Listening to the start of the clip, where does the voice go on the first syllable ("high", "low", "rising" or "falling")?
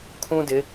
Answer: high